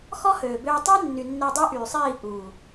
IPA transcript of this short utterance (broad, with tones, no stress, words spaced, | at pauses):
xɔ˦høː˨bøː˧ tˤɛ˦nːy˨ nːe˧dˤø˦ʔyː˨sˤiː˦˨ ʔuː˨